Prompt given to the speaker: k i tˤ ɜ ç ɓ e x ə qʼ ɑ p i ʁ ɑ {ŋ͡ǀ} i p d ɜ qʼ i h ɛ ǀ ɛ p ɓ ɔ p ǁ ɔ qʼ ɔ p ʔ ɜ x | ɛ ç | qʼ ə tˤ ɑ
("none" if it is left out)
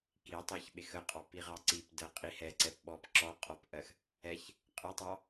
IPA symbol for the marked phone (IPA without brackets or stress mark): ǀ